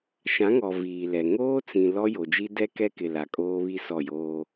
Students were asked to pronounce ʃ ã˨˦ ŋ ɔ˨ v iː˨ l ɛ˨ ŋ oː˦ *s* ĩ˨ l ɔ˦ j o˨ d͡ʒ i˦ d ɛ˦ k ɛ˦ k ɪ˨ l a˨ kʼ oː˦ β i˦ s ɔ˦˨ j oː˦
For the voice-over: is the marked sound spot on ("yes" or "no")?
no